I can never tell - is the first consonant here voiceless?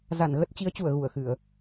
no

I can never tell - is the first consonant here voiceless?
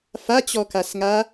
yes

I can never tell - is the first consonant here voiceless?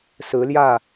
yes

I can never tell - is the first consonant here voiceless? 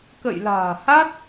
yes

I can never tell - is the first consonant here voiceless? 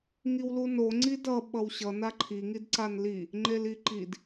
no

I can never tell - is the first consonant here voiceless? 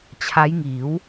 yes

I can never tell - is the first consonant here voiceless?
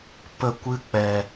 yes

